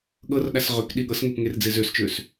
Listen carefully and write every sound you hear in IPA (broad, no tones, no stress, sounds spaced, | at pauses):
ɠ ɤ r ɗ a s ʁ ø k ɗ i ɠ ɤ s ŋ e p ŋ e r d͡z e z ø s t͡ʃ ø s